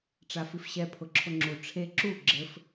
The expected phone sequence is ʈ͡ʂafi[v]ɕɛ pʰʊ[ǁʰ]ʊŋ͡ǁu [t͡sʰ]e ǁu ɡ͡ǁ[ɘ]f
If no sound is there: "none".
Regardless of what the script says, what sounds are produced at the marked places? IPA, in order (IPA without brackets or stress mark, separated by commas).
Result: f, ǁʰ, ʈ͡ʂʰ, ɘ